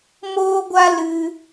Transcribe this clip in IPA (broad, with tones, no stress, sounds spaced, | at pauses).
m oː˦ ɡʷ a˦ l ɨ˧